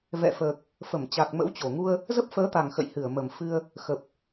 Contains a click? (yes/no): no